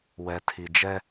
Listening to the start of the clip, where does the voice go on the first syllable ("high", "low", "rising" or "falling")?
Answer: low